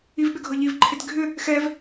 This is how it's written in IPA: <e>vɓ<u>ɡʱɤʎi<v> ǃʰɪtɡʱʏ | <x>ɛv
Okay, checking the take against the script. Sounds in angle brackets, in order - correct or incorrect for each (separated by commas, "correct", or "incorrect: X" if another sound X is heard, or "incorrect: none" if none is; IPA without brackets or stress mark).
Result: incorrect: i, incorrect: ʏ, correct, correct